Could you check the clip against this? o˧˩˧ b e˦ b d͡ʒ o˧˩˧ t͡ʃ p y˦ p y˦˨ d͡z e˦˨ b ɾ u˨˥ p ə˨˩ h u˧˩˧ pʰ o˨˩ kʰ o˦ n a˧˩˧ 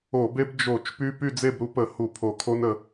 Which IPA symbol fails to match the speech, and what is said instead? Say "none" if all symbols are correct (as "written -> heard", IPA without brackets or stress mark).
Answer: a˧˩˧ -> ə˧˩˧